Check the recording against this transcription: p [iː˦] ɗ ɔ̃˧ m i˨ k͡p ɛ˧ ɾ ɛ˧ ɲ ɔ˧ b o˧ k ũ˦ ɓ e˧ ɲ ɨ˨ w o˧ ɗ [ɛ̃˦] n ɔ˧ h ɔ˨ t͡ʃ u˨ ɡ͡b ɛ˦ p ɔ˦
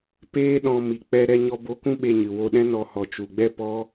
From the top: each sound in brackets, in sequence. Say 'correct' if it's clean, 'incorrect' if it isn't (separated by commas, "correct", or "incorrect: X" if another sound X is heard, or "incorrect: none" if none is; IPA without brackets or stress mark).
incorrect: eː˦, correct